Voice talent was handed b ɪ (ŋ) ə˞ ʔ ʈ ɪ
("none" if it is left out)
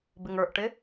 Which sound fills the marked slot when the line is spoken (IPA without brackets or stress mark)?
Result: ŋ